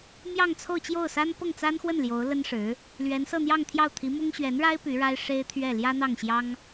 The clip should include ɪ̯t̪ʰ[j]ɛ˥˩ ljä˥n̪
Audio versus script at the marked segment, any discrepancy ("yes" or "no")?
yes